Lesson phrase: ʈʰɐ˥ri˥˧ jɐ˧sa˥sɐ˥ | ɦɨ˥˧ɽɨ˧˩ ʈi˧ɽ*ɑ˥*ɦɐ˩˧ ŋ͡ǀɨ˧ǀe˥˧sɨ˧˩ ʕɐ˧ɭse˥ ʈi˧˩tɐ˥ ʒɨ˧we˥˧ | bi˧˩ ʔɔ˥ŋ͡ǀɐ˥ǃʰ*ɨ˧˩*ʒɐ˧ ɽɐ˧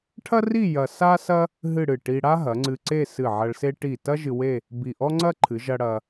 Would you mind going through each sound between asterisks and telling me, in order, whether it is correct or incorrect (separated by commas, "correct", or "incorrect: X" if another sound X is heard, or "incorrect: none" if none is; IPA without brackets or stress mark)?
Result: incorrect: a˥, incorrect: ɨ˩˧